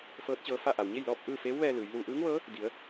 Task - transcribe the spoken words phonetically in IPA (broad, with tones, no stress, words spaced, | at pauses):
fɤː˧˥t̚t͡ɕɤː˧fa˥˨ ʔa˩wɲe˥˨jlɔː˥˨p̚ ʔɯː˥˨feː˧˥wʋɛː˧ lɯː˩˧jlu˧ ʔɯː˧˥ŋʋɤː˧˥ | di˩˧ə̯